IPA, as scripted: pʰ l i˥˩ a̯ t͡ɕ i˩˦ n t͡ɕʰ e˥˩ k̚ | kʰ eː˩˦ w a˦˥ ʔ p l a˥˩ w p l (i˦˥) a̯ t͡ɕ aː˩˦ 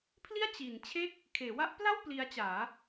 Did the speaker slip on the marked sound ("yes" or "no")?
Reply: no